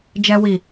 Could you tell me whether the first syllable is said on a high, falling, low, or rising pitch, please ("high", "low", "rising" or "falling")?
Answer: low